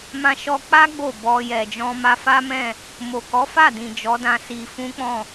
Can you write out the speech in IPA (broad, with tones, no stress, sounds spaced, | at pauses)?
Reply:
m ã˦ ʃ ɔ˦ k͡p a˦ ɡ͡b o˦˨ b ɔ˧ j ɛ˨ d͡ʒ ɔ̃˧ m a˧ f a˦ m ɛ̃˦˨ | m o˨ k ɔ˨˦ f a˦˨ d ĩ˨ d͡ʒ ɔ˨˦ d ã˧ s i˧ f ũ˦ k͡p ɔ̃˦˨